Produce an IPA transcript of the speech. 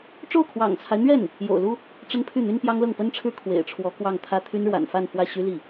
ʈ͡ʂ o˥˩ ʊ̯ kʰ w ɑ̰˨˩ ŋ t͡sʰ a˦ ɪ̯ n̪ ɥ ɛ˥˩ n | j o̰˨˩ ʊ̯ l u˥ | ʈ͡ʂ ə˥ n pʰ y˥˩ n̪ y˥ n p j ɑ˥ ŋ l ɤ˥˩ ŋ p ə˥ n ʈ͡ʂʰ ɻ̩˥ kʰ w ḛ˨˩ ɪ̯ ʈ͡ʂʰ w ɔ˧˥ k w ɑ˥˧ ŋ t̪ʰ ä˥˩ t̪ʰ y˥ n ɻ w a̰˨˩ n f a˥˧ n f w ä˥˩ ɕ y˥ l i˥˩

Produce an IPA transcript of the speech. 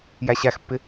j æ ɕ æ x pː ɪ

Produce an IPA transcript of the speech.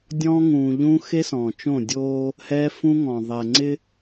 dʲ ɔ̃ː˦ ŋ ũː˨ ʎ ũ˦ x e˦ s ɔ̃ː˨ t͡ʃ õ˦˨ dʲ oː˦ | h ɛː˦ f ũ˦ ŋ ɔ̃˨ ðˤ ɛ˨ ŋ͡ǀ ɪ˦

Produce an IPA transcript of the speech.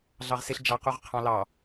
ɮ ɑ ʁ s ɪ ɬ d͡ʒ ɑ q u ʁ qʰ ɑ̃ l ɑ

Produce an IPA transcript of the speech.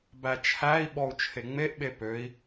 b æ t͡ʃʰ æ i̯ ɓ ɔ u̯ t͡ʃʰ e ŋ͡m e ʔ ɓ e p ø i̯

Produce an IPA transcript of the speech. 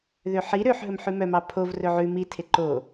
ð ø ħ i ɾ ø ħ ɦ ɵ m ħ ʉ m œ m ɑ pʰ o v r ɵ ʕ ʉ m i tʰ e ǃ o

